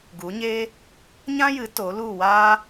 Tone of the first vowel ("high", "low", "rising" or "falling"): rising